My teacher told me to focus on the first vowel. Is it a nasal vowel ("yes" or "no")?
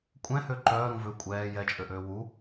yes